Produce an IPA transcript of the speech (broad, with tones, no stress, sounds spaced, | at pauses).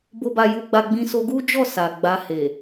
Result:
b o˦ b a˦ j u˦ ɡ͡b a˦ ɡ͡b ĩ˧ s o˧ ɡ u˦ d͡ʒ ɔ˦˨ s a˨ ɡ͡b a˧ h e˨